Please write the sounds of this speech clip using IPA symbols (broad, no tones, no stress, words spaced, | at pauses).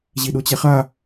ʑiɗot͡ɕɛχa